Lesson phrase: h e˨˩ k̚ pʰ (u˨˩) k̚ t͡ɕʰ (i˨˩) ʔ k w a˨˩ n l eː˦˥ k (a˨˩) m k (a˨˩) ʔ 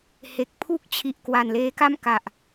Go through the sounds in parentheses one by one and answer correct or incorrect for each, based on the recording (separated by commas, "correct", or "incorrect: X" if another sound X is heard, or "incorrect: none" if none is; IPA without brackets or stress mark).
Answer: incorrect: u˥˩, correct, incorrect: a˥˩, correct